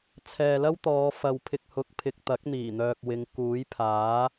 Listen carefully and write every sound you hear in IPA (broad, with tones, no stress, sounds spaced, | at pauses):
t͡sʰ ɛː˨ l ɐ˥ w t̪ ɔː˨˧ f ɐ˨ w pʰ ɪ˧ k̚ h ʊ˨˥ k̚ pʰ ɪ˨ k̚ t̪ ɐ˨˥ k̚ n̪ iː˨˩ n̪ œː˨ k̚ w ɪ˨˧ ŋ k uː˨˥ j pʰ aː˨˥